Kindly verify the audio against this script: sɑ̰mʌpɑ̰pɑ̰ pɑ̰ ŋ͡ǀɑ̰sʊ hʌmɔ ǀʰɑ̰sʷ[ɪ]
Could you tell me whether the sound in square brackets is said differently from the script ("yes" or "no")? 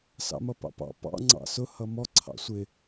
no